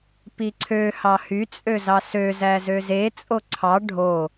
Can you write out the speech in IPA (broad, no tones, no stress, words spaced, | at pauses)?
piǀʰøhɑ hyt͡sʼø zɑsøzæ zøzet͡sʼo ǀʰɑ ɖʱo